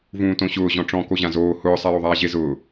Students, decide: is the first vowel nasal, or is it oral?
nasal